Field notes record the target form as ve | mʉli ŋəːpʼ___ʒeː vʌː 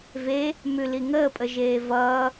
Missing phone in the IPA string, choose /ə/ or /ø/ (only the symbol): ə